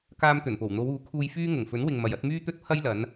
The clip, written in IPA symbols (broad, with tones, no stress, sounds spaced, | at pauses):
k aː˧ m t̪ ɵ˨˩ n p o˨˩ w n̪ o˨˧ w uː˨˥ kʰ uː˧ j f yː˥ ŋ ʊ˨˩ ŋ f ɵ˨˥ n w ɪ˨ ŋ m ɐ˨ j ɐ˨˥ t̚ m yː˥ t̪ ɵ˥ t̚ pʰ ɐ˥ j l ɐ˨˧ n